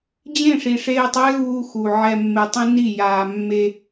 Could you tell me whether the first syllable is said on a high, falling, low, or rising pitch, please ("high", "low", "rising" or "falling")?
falling